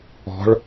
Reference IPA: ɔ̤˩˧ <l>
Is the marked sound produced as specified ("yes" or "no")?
no